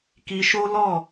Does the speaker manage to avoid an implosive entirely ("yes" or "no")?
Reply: yes